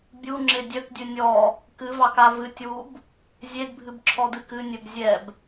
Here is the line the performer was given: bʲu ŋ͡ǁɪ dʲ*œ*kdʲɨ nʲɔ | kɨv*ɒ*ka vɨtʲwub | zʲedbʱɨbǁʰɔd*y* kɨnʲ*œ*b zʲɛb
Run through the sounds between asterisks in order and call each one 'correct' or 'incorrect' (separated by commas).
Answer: correct, incorrect, incorrect, correct